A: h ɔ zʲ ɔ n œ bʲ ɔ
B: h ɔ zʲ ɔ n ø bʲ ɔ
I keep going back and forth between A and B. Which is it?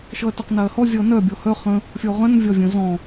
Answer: A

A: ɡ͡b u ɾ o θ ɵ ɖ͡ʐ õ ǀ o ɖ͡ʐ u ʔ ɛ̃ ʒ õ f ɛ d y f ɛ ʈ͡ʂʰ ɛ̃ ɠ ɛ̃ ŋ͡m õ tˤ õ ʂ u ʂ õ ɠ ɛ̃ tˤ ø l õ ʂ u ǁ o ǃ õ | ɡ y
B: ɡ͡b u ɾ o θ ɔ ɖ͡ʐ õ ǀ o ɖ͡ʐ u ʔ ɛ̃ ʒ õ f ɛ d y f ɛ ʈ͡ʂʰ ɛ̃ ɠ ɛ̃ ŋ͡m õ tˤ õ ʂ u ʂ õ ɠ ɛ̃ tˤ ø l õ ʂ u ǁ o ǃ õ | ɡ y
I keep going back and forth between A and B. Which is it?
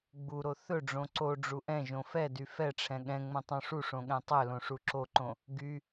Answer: A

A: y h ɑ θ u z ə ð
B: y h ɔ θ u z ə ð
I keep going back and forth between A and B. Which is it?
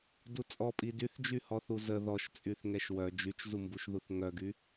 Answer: B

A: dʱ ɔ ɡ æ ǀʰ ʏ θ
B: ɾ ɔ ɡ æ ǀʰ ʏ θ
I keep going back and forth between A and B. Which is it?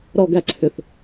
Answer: B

